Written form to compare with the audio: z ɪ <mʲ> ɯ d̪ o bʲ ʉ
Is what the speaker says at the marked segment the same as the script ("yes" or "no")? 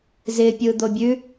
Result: no